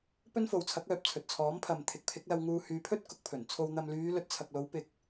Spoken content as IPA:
p ɵ˥ n f o˨ w t͡sʰ ɐ˨˥ k̚ œː˨ p̚ t͡sʰ ɵ˨ t̚ t͡sʰ ɔː˨˥ m pʰ ɐ˨ m t̪ʰ ɪ˨˥ k̚ pʰ ɪ˨˥ k̚ l ɐ˧ w ŋ uː˧ h yː˨˧ pʰ ɵ˥ t̚ k ʊ˨ k̚ pʰ ɵ˨˩ n t͡sʰ o˨ w n̪ ɐ˨ m l yː˨˧ l ɵ˧ t̚ t͡sʰ ɐ˨ k̚ l o˨˥ w p ɪ˨˥ k̚

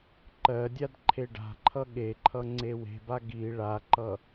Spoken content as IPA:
ǃ ɜ dʲ a d ǃʰ e ɖ a̤ ǃʰ ʌ ɠ e ǃʰ ʌ ŋ͡ǀ e w e̤ b a ɡ i ɭ a ǃ ʌ

